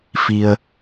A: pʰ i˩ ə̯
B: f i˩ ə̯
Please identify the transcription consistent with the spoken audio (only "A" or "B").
B